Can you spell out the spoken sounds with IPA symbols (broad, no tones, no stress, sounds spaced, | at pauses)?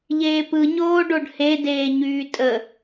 ʎ eː p ɯ ɲ oː ɖ o ɖ h e d eː ɲ yː tʼ ə